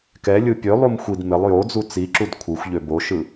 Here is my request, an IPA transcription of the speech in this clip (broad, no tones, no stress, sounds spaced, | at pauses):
k ɛ lʲ ɯ pʲ ø lˠ u m xʷ i d m ɪ lˠ j o d͡z u t͡s i ǁ u d kʷʰ ɯ xʷ ʎ ø b o ʃ ɯ